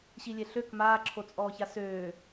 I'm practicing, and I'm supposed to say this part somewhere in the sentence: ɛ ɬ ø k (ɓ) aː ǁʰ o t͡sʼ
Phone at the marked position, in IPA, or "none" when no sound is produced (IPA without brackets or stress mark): m